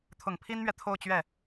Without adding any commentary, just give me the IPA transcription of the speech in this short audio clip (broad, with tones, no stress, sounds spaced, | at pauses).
t̪ʰ ʊ˨˩ ŋ pʰ i˥ n m ɥ ɛ˨ t̪ʰ o˥˧ ʊ̯ t͡ɕ ɥ ɛ˥˩